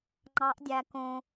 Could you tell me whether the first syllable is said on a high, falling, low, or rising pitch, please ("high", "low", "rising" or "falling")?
rising